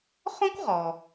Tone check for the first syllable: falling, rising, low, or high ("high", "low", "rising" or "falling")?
high